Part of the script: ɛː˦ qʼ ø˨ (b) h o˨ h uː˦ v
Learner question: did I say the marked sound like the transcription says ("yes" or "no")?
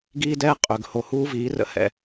no